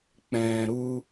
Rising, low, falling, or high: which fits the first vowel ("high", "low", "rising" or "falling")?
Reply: low